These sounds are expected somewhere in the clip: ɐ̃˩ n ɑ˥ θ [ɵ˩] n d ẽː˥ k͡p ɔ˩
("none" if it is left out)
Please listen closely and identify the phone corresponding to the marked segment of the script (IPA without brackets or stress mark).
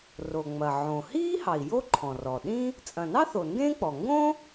o˩